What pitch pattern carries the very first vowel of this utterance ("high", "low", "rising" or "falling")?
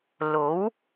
rising